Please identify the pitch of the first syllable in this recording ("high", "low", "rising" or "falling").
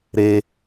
high